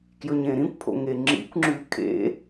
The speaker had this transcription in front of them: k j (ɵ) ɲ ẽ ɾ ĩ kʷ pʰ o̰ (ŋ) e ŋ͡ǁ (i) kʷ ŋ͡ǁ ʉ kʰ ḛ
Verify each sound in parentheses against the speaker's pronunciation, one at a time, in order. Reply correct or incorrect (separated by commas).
correct, correct, incorrect